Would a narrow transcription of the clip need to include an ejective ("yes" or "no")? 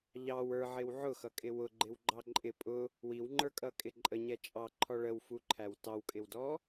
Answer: yes